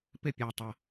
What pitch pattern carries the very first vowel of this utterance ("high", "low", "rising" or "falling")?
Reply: falling